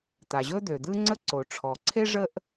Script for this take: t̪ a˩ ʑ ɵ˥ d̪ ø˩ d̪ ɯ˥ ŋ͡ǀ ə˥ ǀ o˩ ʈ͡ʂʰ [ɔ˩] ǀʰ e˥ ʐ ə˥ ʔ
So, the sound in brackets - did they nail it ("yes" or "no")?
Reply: yes